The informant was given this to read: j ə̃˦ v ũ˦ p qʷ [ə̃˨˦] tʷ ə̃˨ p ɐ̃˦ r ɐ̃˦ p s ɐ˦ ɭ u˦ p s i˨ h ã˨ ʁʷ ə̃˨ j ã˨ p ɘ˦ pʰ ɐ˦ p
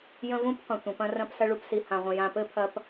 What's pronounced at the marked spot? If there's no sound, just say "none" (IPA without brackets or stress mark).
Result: ə̃˨